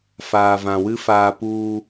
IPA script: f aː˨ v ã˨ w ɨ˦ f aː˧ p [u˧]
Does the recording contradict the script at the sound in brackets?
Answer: no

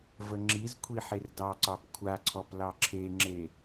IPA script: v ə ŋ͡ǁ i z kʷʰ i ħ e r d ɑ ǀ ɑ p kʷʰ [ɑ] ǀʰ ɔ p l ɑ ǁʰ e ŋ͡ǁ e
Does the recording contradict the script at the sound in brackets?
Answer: yes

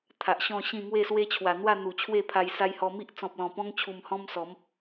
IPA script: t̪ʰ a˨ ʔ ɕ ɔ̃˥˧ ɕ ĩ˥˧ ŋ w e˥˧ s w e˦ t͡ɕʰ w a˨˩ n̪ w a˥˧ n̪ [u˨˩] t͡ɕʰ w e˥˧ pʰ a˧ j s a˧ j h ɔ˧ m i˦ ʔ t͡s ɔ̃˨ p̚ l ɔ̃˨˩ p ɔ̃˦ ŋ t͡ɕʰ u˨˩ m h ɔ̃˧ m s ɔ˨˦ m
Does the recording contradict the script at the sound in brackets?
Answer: no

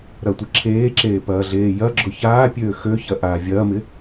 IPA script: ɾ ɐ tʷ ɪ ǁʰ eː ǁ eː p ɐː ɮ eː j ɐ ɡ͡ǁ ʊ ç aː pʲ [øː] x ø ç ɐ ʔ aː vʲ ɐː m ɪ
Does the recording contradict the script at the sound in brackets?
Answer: no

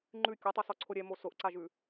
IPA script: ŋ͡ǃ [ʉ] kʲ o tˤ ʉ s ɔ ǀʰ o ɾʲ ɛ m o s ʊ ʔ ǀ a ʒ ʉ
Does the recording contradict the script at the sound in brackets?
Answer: no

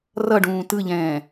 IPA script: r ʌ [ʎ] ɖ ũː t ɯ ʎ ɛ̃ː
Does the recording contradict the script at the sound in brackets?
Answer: yes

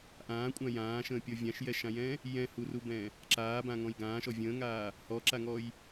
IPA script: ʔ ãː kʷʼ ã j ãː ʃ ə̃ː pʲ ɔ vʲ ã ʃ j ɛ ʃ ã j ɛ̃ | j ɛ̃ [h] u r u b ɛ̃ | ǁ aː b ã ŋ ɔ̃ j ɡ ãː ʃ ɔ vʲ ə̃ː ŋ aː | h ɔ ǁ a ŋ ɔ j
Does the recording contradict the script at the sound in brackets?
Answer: no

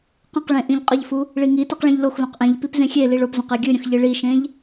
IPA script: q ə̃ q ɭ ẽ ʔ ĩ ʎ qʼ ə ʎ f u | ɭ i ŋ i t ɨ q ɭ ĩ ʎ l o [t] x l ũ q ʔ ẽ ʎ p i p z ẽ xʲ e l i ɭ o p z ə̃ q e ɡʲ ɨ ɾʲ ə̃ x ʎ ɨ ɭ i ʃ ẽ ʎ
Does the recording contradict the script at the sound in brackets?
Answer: yes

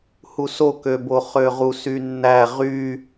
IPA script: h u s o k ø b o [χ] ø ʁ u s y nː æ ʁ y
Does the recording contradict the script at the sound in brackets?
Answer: no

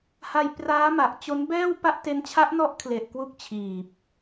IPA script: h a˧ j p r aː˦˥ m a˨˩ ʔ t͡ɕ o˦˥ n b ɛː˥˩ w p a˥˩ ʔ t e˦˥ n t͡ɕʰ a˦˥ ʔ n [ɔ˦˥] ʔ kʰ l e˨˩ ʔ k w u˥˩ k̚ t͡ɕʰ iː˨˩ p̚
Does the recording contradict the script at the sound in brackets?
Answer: no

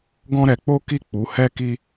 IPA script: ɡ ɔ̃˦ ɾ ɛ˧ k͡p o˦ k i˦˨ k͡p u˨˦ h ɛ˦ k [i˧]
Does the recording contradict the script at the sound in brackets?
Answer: yes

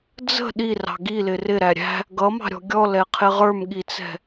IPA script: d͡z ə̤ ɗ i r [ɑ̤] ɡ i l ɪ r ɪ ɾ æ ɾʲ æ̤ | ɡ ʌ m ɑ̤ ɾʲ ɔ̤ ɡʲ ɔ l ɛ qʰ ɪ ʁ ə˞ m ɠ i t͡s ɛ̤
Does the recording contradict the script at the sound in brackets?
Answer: no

